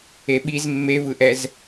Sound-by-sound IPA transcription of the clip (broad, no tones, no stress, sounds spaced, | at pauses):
e ɓ i z mː e v ɯ ʔ ɛ z